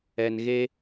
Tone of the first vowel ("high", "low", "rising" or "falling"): low